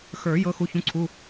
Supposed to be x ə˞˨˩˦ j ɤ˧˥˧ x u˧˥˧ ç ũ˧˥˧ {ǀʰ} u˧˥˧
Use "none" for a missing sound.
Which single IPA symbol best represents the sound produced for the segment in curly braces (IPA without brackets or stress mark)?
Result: ǀʰ